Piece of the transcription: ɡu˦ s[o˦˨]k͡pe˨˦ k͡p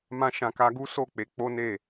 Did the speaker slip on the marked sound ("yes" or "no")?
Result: no